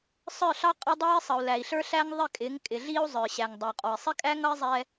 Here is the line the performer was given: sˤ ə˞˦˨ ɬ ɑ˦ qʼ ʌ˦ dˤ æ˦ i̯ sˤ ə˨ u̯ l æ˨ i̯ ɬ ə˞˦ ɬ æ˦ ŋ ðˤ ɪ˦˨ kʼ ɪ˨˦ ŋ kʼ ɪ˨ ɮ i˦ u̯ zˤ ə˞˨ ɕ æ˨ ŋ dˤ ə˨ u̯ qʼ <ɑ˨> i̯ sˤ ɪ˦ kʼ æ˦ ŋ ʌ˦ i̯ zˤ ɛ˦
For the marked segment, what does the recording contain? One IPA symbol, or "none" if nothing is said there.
ɔ˨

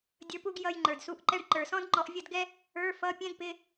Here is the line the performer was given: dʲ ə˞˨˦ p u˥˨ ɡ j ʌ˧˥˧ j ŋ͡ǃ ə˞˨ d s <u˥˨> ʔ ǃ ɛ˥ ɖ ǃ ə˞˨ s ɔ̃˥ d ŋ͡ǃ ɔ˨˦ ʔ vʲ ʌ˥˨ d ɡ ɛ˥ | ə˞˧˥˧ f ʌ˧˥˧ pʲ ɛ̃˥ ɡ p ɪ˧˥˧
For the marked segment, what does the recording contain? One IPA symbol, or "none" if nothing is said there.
u˥˨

